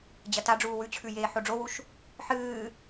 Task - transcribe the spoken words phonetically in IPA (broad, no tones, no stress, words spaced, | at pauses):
d͡ʑɐtaɖ͡ʐuː wʉt͡ɕʰʉ jeːħoɖ͡ʐowuʃ | ħɨː